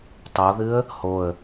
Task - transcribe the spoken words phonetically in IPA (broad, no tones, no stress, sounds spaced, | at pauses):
tˤ o ð ɨ ə̯ | h o ə̯